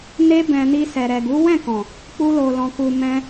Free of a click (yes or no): yes